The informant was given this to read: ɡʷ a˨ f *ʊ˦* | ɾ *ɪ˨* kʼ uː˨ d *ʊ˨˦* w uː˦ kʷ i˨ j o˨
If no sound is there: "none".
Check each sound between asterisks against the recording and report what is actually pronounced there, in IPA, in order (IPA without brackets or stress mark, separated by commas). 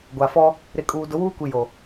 ɔ˦, ɪ˨, ʊ˨˦